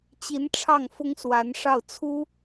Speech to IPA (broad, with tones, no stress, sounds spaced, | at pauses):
t͡ɕ i˧˥ n ʈ͡ʂʰ ɑ˥˩ ŋ f ʊ˥ ŋ s w a˧˥ n ʂ ɑ˥˩ ʊ̯ t͡sʰ u˥